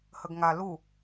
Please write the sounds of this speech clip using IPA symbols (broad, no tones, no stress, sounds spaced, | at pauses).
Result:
h ə ɡ ŋ a l u